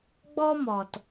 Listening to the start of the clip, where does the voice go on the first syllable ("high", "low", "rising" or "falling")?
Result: high